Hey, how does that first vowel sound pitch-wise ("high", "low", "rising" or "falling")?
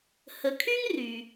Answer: low